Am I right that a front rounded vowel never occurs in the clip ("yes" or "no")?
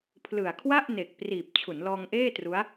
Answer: yes